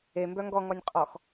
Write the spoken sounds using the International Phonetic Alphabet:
e m b œ ŋ ɡ ɔ ŋ ɔ nʲ qʼ ɔ x

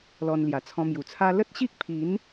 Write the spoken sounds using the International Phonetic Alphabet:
l ɔ˧ n l j a˨˩ t͡sʰ ɔ̃˧ m j u˨˩ t͡sʰ a˦ l ə˦ t̚ ɕ i˦ k̚ pʰ i˨˦ n

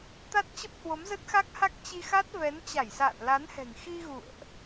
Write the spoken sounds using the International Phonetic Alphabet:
t̪ a˦˥ t̚ t͡ɕ ə˦˥ p̚ h w o˨˦ m z ə˦˥ t̚ x a˦˥ k̚ h a˦˥ k̚ t͡ɕ i˧ x a˦˥ t̚ v ɛ˨˦ n t͡ɕ a˧˩ j s a̰ː˧˨ n l a˨˦ n h ɛ̤˨˩ ŋ x i˧ ɣ ṵ˧˨ ə̯ ʔ

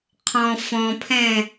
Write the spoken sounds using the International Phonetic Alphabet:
qʰ ɔ̃ f ɔ̃ pʰ ɛ̃

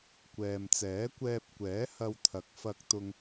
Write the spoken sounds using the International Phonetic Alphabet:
kʷ ɛː˨ m t͡s ɛː˨˥ kʷ ɛː˧ p̚ kʷ ɛː˨˥ h ɐ˧ w t̪ʰ ɐ˨˥ k̚ f ɐ˧ k̚ t̪ ʊ˧ ŋ

